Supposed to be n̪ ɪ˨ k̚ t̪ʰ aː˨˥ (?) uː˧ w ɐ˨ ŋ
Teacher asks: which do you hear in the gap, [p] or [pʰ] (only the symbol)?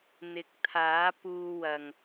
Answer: p